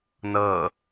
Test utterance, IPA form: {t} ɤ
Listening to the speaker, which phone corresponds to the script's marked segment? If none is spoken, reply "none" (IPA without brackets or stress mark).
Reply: n